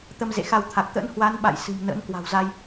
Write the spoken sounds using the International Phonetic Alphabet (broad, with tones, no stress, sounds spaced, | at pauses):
t̪ ə˧ m z ḛ˧˨ x a˧ w t̪ʰ a˨˩ k̚ t̪ ə̰˧˥ n h w a˨˦ n ɓ a̰˧˨ j s ɨ̤˨˩ m n ə̰˧˥ n k w a̤˨˩ w z a˧ j